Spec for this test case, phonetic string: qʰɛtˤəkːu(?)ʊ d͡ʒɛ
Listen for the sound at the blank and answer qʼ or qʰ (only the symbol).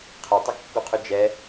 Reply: qʰ